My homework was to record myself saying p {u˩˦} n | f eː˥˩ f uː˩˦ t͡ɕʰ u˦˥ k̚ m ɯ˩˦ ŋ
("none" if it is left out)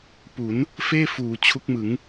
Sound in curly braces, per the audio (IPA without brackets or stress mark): u˩˦